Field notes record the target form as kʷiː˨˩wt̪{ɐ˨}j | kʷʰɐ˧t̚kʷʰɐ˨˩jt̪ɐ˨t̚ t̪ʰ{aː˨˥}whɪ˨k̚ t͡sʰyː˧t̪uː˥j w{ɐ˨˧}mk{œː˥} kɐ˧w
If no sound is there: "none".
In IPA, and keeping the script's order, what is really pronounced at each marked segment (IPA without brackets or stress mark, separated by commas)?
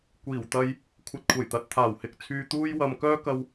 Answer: ɐ˧, aː˨˩, ɐ˨, œː˥